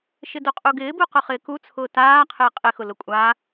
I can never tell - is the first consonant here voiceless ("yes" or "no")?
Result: yes